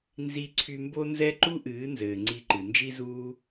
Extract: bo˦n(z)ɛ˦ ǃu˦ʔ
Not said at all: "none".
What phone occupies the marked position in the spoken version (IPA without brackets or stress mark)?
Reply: z